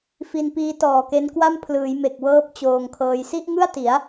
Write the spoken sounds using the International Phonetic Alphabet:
f i˧ n p iː˦˥ t ɔː˨˩ k e˦˥ n k w a˥˩ m pʰ l ɯː˩˦ j m e˨˩ k̚ w ɤː˦˥ p̚ t͡ɕ oː˧ ŋ kʰ ɤː˦˥ j s i˥˩ ʔ ŋ ɯ˥˩ a̯ t i˩˦ a̯

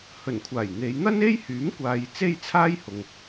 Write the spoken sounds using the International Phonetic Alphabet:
h ɵ˨˩ n kʷʰ aː˨˩ j n̪ e˨˧ j n̪ ɐ˥ n e˥ j h yː˨˥ m kʷ aː˨ j t͡s e˥ j t͡sʰ aː˥ j h ʊ˨ ŋ

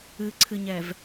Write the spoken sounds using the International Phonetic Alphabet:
ɨ ǀʰ ɨ ɲ ɛ v

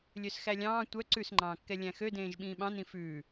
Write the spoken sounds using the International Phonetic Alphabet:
lʲ ø s x æ lʲ ɑ̃ː tʷ œ ǀ ʉ s ŋ͡ǃ ɑ̃ː kː ɛ lʲ æ̃ x ø d ẽː ʒ ɓ ĩː ɓ ɑ̃ n ĩ f ʉː

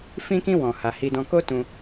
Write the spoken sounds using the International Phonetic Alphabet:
f ĩ˦ k ĩ˦ w ɔ̃˧ h a˧ h i˧ d ɔ̃˧ k o˦ t ũ˧

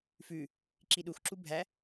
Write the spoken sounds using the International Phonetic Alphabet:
f ʉ | ǁ i ɗ u x ǁ u bʱ æ

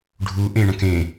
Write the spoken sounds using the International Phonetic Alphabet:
ɖʱ u ʔ ẽ ɳ ɐ̃ k ẽ

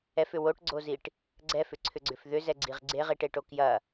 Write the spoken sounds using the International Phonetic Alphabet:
ɛ f ʏ w o ʈ ɡ͡ǀ o z i ʈ | ɡ͡ǀ ɛ f ʏ ǀʰ ʏ ɡ͡ǀ ʏ f ð ʏ z ɛ ɡ͡ǀ i ʁ ɡ͡ǀ e ʁ i ʈ e ʈ o k j ɐ

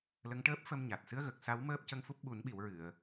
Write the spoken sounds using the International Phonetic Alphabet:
l ə˧˥ ŋ ʈ əː˦˥ p̚ f ə˧ m ɲ a˨˩ t̚ s ɨ˧˥ ə̯ ɣ ə˨˩ k̚ s a˧˥ w m əː˦˥ p̚ c ə˧ ŋ f u˦˥ p̚ ɓ u˨˩˦ n ɓ i˨˩˨ w ɹ ɨ˨˩˨ ə̯

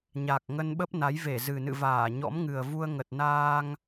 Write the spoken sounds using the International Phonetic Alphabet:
ɲ a˨˩ k̚ ŋ ə˧ n ɓ ə˦˥ p̚ n a˨˦ j v e˧˩ z ɨ˨˩ n ɨ̰˧˨ v aː˧˩ ɲ ɔ̰˧˥ m ŋ ɨ˨˩ ə̯ v u˧ ə̯ ŋ ə˨˩ t̚ n aː˧ ŋ

